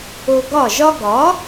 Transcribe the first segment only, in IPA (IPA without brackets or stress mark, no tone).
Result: o